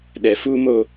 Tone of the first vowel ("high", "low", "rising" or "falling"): low